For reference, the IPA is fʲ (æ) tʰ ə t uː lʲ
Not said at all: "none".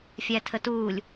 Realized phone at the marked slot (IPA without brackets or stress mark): æ